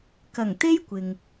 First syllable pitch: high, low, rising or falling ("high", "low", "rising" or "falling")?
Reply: low